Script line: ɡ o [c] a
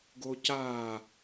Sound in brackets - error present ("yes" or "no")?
no